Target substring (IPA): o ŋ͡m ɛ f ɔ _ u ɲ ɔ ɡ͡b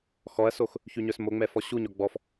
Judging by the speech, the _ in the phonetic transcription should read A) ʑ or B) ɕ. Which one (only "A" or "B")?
B